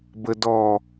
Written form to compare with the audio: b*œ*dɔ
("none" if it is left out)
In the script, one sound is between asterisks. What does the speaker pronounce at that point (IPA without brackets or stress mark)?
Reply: ə